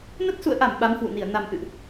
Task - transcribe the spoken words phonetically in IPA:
n ə˦˥ t̚ s ṵ˧˨ ə̯ ʔ a˧˩ m ɓ a˨˦ m h w ṵ˧˨ n i˧˩ ə̯ n a˨˩ m ʔ ɨ̰˧˨ ʔ

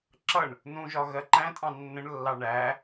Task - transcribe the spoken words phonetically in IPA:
ǁ ʌ ɳ | n ũ ʒ ɒ ɣ ɜ ǃ æ̃ tʼ ɑ̃ nː ə̃ ɳ lː ɑ ɳ æ

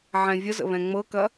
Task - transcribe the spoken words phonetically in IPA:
ʕ ɛ̃ vʲ ə z ə̰ β ɛ̃ ŋ͡m ɤ k ɐ

